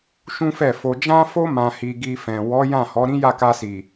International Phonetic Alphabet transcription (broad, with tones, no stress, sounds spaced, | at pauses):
ʃ ũ˦ f ɛ˦˨ f o˧ d͡ʒ ã˦ f o˦ m ã˧ h i˧ ɡ i˧ f ɛ̃˨ w ɔ˨˦ j ã˦˨ h ɔ˨˦ ɾ ĩ˦ j a˦˨ k a˧ s i˨